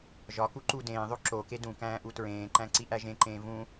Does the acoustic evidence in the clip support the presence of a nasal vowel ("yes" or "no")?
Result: yes